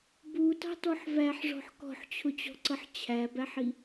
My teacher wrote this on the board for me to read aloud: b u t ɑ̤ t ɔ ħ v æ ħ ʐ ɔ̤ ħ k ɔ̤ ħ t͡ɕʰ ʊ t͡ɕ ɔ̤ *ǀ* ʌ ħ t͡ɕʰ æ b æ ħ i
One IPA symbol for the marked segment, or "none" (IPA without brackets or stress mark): ǀ